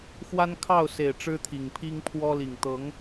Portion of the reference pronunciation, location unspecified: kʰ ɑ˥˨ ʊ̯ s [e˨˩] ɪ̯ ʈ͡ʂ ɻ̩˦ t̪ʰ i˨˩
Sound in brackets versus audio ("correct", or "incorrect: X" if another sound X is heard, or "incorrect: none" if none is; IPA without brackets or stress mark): correct